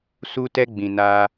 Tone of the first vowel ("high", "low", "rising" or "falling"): high